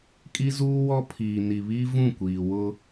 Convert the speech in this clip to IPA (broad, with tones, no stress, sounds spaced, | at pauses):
kʼ i˦ z uː˦ w ɔ˦ pʰ iː˨ n i˨ β i˦ v ũ˦˨ kʷ iː˨ w ʊ˦